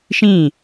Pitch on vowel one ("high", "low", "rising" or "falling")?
falling